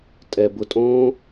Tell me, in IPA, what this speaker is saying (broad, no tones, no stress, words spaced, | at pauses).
tʼɛ bʊtʼõː